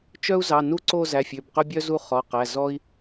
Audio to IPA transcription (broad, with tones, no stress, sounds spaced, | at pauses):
t͡ʃ œ˥ u̯ z ɑ˩˧˩ n u˥ ǀ o˥˧ z æ˩˧˩ fʲ ø˩˧˩ b q ɵ˥ bʲ œ˥ z u˥˧ χ ɔ˩˧˩ q æ˩˧˩ z ɔ˥ i̯